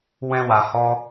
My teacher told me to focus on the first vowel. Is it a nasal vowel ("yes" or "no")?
yes